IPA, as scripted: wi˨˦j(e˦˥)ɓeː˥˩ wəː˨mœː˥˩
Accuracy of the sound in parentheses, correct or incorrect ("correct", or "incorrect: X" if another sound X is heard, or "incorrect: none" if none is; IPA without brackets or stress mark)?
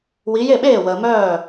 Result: incorrect: e˥˩